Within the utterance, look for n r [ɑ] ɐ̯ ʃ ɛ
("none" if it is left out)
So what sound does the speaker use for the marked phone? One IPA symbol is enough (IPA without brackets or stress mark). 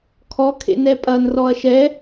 ɔ